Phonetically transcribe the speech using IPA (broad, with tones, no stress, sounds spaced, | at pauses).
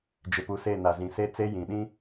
d͡ʒ ɪ˨ p u˨ s e˦˨ n a˨ z ĩ˨ s e˦ t͡s e˦ j ĩ˨ ɗ ĩ˦